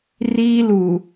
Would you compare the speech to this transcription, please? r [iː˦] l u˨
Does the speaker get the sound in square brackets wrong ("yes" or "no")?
no